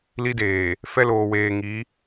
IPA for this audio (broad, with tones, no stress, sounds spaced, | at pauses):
l i˦ d eː˨ | f ɛ˦ l oː˨ w eː˨ ŋ i˨˦